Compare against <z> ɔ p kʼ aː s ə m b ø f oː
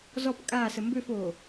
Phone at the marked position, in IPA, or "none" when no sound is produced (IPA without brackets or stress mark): z